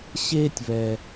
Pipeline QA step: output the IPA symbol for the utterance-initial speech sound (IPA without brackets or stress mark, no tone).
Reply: ɕ